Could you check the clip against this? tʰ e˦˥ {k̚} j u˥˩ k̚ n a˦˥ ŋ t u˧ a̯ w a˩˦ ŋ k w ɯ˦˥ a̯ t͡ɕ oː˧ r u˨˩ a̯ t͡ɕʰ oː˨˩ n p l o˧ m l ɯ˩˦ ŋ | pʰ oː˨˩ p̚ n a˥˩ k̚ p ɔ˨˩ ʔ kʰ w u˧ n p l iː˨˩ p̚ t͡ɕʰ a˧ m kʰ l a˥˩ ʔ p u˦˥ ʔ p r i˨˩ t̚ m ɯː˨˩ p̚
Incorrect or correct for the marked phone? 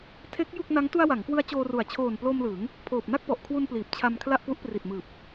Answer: correct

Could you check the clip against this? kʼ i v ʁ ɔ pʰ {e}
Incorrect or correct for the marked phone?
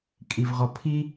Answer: incorrect: i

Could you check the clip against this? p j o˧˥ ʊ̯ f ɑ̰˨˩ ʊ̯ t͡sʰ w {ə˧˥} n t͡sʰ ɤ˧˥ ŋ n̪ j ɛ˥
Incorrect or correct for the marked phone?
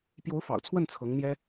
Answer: incorrect: ə˥˩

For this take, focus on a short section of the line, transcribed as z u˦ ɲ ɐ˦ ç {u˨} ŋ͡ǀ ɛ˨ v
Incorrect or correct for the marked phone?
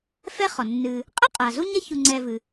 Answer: correct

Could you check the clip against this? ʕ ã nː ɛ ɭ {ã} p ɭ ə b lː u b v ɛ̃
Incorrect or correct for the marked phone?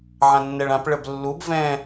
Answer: correct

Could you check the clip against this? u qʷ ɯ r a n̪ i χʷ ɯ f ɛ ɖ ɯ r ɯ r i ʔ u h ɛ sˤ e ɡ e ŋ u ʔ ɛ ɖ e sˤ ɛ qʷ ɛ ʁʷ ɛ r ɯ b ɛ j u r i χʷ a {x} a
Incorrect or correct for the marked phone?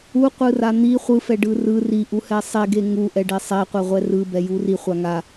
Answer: incorrect: ŋ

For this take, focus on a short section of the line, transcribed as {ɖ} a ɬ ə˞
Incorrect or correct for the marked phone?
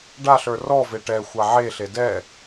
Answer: correct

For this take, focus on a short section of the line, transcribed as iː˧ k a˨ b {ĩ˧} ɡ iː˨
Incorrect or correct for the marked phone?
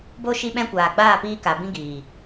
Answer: correct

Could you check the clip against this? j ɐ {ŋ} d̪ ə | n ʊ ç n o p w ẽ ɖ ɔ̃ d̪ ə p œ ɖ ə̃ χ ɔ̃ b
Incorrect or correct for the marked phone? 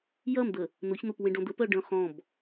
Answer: incorrect: m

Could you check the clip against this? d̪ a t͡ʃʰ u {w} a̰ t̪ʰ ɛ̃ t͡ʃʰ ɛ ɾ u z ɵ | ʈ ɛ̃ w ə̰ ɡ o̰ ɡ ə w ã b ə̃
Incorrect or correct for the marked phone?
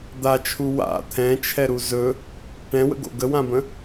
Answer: correct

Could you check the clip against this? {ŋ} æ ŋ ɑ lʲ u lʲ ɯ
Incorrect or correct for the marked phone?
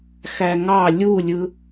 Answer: incorrect: x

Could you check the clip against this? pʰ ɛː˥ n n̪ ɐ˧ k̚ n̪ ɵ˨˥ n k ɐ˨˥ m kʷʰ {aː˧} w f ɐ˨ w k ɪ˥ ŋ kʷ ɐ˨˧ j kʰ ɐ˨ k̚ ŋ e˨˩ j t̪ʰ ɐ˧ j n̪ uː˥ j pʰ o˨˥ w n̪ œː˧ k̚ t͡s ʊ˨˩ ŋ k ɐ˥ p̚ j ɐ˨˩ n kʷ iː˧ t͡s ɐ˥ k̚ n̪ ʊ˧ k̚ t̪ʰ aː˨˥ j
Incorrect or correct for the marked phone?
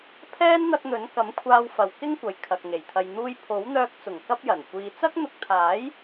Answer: correct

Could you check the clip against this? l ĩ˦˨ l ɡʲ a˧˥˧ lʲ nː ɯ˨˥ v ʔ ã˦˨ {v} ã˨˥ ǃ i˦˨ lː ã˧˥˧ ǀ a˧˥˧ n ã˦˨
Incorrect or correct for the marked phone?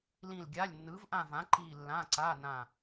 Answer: correct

